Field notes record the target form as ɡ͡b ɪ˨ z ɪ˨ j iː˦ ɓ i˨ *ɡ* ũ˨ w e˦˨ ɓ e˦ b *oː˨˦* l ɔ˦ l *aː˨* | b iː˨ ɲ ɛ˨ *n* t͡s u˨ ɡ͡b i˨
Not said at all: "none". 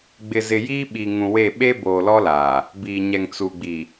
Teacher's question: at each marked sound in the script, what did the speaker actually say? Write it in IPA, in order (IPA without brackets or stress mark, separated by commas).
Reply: ŋ, oː˨, aː˨, ŋ